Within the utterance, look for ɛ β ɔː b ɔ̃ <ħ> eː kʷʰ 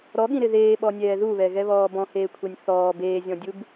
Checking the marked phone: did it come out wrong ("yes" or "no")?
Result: yes